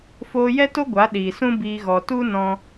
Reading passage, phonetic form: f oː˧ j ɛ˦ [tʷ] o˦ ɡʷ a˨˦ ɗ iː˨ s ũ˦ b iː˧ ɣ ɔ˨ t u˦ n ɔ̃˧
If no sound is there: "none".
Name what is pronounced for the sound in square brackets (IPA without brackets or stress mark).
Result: t